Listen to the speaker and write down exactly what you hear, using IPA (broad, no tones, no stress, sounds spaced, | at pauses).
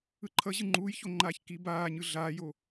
ɯ ǃʰ ʌ ʑ ɯ ŋ͡ǃ uː j ç o ŋ͡ǃ aː ç k i b aː ɲ ɯ ɮ aː j o